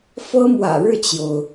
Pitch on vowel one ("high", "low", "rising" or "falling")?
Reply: high